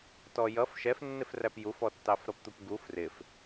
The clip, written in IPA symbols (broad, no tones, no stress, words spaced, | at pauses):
tɔjʌf ʃɛfnːɪfræp jufɔtːɑf ɾʌpt̪upɡuf rɪf